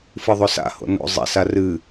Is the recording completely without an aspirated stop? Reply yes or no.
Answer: yes